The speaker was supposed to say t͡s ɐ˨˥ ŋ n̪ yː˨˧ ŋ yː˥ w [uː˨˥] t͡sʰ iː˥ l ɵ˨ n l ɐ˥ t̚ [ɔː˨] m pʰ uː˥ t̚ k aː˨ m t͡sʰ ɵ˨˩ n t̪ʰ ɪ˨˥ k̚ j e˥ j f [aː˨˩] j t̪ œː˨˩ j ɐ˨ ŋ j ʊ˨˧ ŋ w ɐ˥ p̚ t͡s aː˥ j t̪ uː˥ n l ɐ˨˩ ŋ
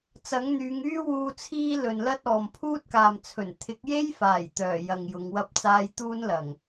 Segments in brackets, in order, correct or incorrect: incorrect: uː˧, correct, correct

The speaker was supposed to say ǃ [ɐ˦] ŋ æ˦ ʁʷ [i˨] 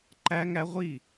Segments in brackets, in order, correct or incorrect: incorrect: æ˦, incorrect: i˦˨

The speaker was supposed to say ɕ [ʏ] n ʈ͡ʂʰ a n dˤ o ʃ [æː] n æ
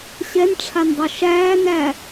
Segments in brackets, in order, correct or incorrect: incorrect: ɛ, correct

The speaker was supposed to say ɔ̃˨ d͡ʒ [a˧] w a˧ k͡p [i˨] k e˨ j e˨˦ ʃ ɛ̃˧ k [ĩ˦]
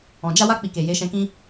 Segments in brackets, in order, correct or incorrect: correct, correct, correct

